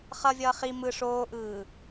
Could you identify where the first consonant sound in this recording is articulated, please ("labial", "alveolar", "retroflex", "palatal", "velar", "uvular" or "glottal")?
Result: uvular